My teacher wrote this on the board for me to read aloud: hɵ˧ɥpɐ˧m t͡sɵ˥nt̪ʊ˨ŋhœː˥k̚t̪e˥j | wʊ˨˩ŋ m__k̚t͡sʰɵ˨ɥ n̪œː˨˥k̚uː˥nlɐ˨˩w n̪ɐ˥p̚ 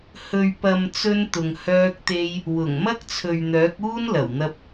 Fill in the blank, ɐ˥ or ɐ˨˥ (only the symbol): ɐ˥